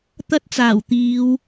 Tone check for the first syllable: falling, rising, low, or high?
high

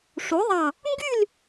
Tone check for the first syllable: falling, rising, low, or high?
rising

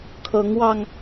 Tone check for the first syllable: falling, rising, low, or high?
rising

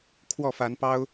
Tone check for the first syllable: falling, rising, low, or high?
falling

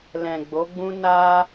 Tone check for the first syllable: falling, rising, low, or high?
low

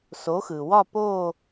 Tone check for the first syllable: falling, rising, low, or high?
rising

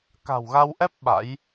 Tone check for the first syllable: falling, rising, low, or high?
low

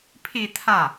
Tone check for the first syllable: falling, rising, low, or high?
falling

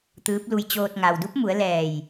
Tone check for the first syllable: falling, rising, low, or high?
rising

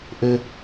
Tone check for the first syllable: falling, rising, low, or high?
high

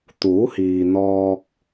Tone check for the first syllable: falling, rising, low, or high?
rising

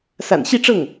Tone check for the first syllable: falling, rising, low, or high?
low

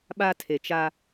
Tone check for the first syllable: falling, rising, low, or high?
high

